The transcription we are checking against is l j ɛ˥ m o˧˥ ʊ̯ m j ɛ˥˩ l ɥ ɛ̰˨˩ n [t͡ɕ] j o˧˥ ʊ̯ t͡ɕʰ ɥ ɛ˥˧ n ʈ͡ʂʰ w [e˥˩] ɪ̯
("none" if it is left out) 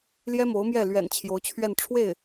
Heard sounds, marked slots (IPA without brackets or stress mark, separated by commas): t͡ɕʰ, e˥˩